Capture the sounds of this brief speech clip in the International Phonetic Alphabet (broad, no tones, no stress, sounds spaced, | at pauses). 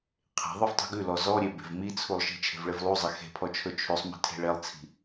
qʰ e̤ ðˤ ɵ v tˤ i̤ ɡ ʉ l ɔ z ɔ ɾʲ e b e̤ v m i t͡sʰ u lˠ ʃ i̤ t͡ʃʰ e̤ v ɭ e v lˠ u zˤ e x e̤ pʰ ɔ t͡ʃʰ ɵ t͡ʃʰ ʉ sˤ m i̤ tʰ e̤ ɭ e lˠ t͡sʰ i̤